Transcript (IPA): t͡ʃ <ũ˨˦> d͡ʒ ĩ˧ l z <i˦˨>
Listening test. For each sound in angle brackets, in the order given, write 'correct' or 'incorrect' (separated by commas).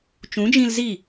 correct, correct